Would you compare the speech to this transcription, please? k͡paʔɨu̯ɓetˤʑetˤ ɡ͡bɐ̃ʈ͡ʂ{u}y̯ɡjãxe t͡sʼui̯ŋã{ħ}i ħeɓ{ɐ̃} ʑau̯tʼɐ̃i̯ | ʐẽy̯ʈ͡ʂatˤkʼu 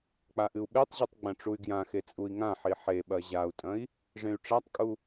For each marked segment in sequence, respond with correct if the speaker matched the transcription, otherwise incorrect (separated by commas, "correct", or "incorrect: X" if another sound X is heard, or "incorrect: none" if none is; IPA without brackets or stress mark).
correct, correct, incorrect: ɐ